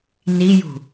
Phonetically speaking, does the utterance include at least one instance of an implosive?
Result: no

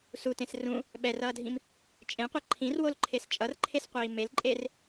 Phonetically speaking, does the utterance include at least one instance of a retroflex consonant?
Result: no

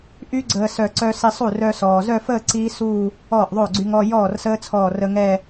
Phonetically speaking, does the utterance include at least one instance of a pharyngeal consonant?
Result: no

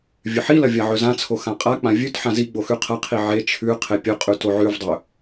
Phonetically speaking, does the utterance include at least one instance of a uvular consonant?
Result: yes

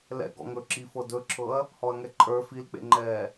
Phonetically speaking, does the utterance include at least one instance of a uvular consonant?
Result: no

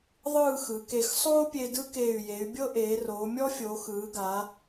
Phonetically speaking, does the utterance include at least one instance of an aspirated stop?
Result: no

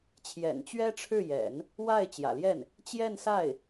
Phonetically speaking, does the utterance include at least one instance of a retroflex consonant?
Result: yes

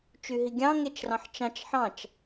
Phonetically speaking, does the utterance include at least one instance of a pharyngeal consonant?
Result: yes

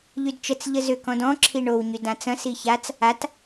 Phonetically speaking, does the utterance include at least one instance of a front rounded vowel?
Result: yes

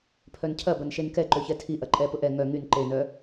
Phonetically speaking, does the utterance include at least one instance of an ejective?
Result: yes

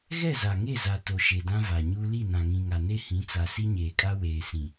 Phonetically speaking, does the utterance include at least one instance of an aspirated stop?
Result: no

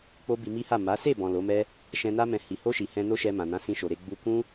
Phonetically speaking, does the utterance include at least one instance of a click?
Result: no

